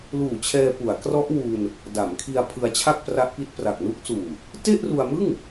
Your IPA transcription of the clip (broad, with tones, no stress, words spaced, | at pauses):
luː˨˩t͡ɕʰɛː˧pu˩˦a̯ krɔ˦˥ʔ wu˧n | da˩˦mkʰi˧a̯ pʰɯ˧a̯t͡ɕʰa˥˩k̚pra˦˥ʔ pi˦˥t̚pra˨˩k̚ nu˦˥k̚suː˨˩ | te˥˩ʔru˧a̯mɯ˥˩ŋ